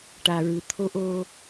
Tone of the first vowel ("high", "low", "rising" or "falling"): low